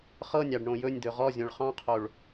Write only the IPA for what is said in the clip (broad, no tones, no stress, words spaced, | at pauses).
χɤnʲɑɖ ɳõjɵnʲd̪ɵ ʁɔzʲõɭ χɑ̃qʰoɭ